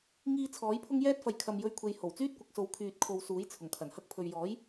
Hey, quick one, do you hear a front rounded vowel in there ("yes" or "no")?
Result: yes